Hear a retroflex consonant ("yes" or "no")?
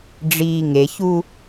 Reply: yes